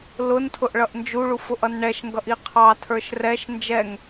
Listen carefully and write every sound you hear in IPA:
l ʊ n tʰ ʊ ʔ ɭ ʌ ʔ n d͡ʒ u ɭ u f ʊ ʔ ʌ n ɳ ɛ ʃ ŋ ɡ ʌ ʔ i qʰ ɑ tʰ ə˞ ʃ r ɛ ʃ n d͡ʒ ɛ ŋ

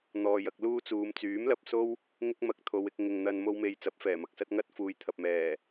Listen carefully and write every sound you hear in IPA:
n̪ ɔː˨ j ɐ˧ k̚ l uː˥ t͡s uː˨˧ m t͡s yː˨˥ m l ɐ˨ p̚ s o˥ w | ŋ ɪ˥ k̚ m ɐ˧ k̚ t̪ʰ o˨˧ w ɪ˧ k̚ ŋ ɪ˨ ŋ n̪ ɐ˧ n m o˧ w m e˨ j t͡s ɐ˨˥ p̚ f ɛː˨˩ m ɐ˨ k̚ s ɐ˥ t̚ ŋ ɐ˥ t̚ f uː˨ j t̪ʰ ɐ˨ p̚ m ɛː˨˩

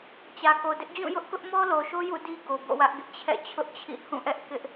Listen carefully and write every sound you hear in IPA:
t͡ɕ ä˨ k o˨ d ɪ˦ ʔ d͡ʑ ũ˦˨ j ʊ˦ ʔ k ʊ˦ ʔ m ɔ˦ l o˨ ʃ o˦ j ṵ˦˨ d i˦ ɡ o˨ b o̰˦˨ w ä˦ ʔ ɡ ɪ˦ ʔ t͡ɕʰ ɛ̰˦˨ t͡ɕʰ ʊ˦ ʔ t͡ɕʰ ḭ˦˨ h ũ˦˨ ʔ ɛ˦ ʔ k ɪ˦ ʔ

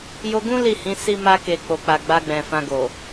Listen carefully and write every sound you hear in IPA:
j o˧ ɡ ũ˦ l i˦˨ h ĩ˨˦ s i˧ m a˧ k e˨ k͡p o˨ k͡p a˨ ɡ͡b a˧ ɡ͡b ɛ̃˨ f ã˧ ɡ o˨

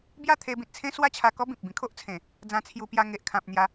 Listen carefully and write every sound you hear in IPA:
b j a˥˧ t̪ʰ e˧ b ĩ˨ t̚ t͡sʰ ẽ˦ s w a˦ t͡ɕʰ a˧ k ɔ˦ b ĩ˨ p̚ b ĩ˧ kʰ o˦ ʔ t͡sʰ ẽ˨˩ | d͡z ã˧ t͡sʰ j u˧ p j a˧ ŋ e˨ ʔ kʰ ã˨ p̚ n̪ j a˨˦

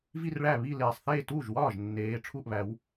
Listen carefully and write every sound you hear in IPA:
v i˥˧ r ɭ æ˥˩ β i˥˩ l eː˨˩ sˤ θ eː˥˩ t uː˥˩ ʒ w ɒː˥˩ ʒ nː eː˨˦ ʈ͡ʂʰ u˥˩ ʔ β æ˨˦ w

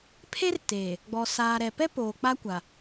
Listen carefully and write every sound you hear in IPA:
pʰ e˦ r t e˨ | ɡ͡b ɔ˨ s aː˨ ɾ ɛ˨ p ɛ˦ p oː˨ k͡p a˦ kʷ a˨

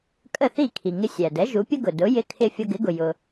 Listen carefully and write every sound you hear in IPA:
kʼ ə˥˩ θ i˥˩ kʰ i˩ ŋ ɪ˧ sʲ æ˩ d ɛ˩˥ ʒ u˩˥ pʲ ə˥ ɡ ʊ˩ d ʊ˩˥ j ɪ˧ kʰ ɪ˧ fʲ ʌ˧ ɡ ɪ˩˥ ɡ ʊ˩ j ʊ˩

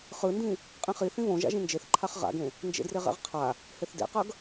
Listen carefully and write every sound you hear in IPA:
χ ɯ n d ĩ | qʼ ĩ χ i θ ĩ β õ ʒ a̰ ʒ ĩ n d͡ʒ e θ ǃʰ a χ ʁ a̰ ɡ ẽ | n d͡ʒ ḛ d r e ʁ ɛ̰ ʁ qʰ a | h e θ d ḛ q ʌ ɡ

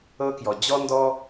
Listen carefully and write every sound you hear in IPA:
ɤ˥ k j ɔ˧ d͡ʑ ɔ˥ n d ɔ˥

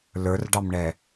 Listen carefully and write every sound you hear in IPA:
l ə˞ r ɖ ɑ m ɳ ɛ

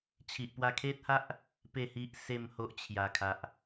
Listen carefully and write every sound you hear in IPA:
t͡ɕʰ i˨ ʔ p w a˧ kʰ e˦ t̚ h a˦ ʔ | p e˥˧ h i˦ ʔ s e˥˧ m h o˦ ʔ t͡ɕʰ j a˨˩ kʰ a˨ ʔ

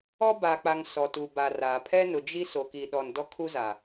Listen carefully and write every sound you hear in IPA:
ɔ˦ b a˨ k͡p a˨ ŋ s ɔ˨ t u˨ b a˨ r a˨ pʰ ɛ˦ n ʊ˨ d͡ʒ i˦ s o˨ k i˨ ɗ ɔ˨ n d ɔ˦ kʰ u˦ z a˨

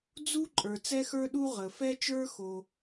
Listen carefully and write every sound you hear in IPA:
d͡z u˥ ǃʼ ə˞˨ t͡s ɛ˥ x ə˞˥ ɗ u˥ ʁ ə˨ f ɛ˥ t͡ʃ ə˞˥ x o˨

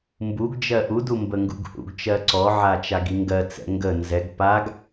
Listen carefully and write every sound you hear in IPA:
m b u ɡ d͡ʒ ɜ ʔ u d u m b ə ŋ ɡ ṵ ɡ h ṵ ɡ t͡ʃ ɜ ǀ ɔ ʕ a t͡ʃ a ɡ i ŋ ɡ ɜ t͡s ɛ̰ ŋ ɡ ə n z ɛ ɡ p a ɡ

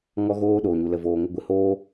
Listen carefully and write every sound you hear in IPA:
ŋ ɔ˦ ɣ oː˦ ɗ oː˨ ɲ u˨ l ə˨ v oː˨ ŋ ə˧ ɡʷ ɨ˨ h oː˦

